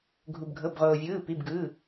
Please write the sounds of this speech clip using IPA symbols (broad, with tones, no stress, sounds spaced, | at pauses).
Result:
ɡʱ u˩ b ɡʱ ɤ˩˧˩ b ʁ oː˩ vʲ ɯː˩˧˩ p i˩˧˩ b ɡ ɯ˩˧˩